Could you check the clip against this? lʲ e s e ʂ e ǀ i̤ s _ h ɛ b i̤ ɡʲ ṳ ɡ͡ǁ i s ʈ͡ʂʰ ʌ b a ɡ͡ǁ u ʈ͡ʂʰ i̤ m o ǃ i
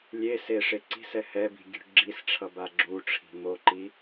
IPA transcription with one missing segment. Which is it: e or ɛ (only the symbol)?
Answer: ɛ